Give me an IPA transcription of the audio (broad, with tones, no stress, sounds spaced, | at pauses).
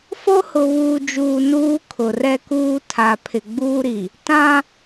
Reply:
f o˦ h ʊ˨ β uː˨ d͡ʒ uː˨ n uː˦ kʰ ʊ˨ r ɛ˦ k uː˦ tʰ a˨ pʰ ɪ˨ ɡ͡b uː˦ ɾ i˨ | t ã˦